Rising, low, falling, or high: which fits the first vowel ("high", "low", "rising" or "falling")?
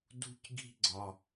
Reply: high